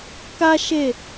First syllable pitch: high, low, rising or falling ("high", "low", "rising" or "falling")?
high